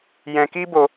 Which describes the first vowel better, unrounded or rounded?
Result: unrounded